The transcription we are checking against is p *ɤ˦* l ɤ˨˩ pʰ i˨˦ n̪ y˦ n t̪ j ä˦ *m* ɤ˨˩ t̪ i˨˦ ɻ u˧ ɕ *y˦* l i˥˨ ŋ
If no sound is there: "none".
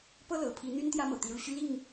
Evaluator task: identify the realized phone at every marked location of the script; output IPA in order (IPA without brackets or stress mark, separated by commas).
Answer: ɤ˦, m, y˦